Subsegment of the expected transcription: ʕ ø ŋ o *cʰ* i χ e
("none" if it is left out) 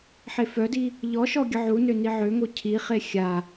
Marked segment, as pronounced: cʰ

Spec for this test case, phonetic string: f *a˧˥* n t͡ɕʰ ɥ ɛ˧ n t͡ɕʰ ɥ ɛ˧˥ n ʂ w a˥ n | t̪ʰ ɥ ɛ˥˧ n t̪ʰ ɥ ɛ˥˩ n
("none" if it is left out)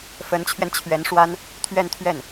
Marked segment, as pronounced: ə˧˥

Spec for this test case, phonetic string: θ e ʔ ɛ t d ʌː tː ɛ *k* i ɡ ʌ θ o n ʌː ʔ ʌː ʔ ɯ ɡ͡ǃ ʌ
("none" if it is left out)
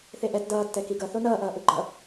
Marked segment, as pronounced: k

